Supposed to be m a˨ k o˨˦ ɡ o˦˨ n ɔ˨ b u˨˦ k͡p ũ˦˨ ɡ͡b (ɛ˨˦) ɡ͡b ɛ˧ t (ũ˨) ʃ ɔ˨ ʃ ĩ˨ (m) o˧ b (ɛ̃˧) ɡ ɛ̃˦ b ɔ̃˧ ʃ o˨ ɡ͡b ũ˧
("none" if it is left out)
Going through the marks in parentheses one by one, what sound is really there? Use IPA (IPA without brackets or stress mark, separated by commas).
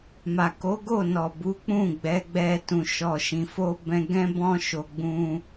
ɛ˨˦, ũ˨, f, ɛ̃˧